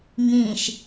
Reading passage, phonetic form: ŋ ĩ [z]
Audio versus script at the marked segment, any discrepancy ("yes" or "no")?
yes